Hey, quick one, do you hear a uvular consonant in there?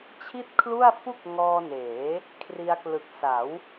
no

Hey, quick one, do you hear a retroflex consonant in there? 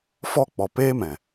no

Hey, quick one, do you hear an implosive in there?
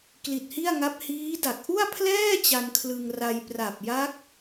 no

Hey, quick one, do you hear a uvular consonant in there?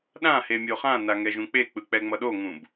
yes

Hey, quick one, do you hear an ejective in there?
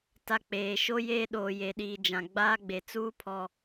no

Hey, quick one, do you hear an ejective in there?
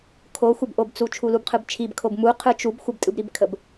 yes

